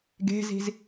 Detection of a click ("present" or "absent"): absent